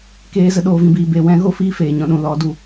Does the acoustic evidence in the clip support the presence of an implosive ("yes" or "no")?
yes